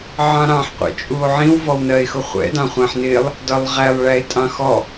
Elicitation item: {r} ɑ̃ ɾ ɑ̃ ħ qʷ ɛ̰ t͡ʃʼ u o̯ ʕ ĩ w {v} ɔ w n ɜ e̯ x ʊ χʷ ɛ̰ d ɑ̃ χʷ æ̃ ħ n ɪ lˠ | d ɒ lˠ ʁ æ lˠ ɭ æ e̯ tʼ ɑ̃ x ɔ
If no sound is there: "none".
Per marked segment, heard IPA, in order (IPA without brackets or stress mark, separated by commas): ʕ, v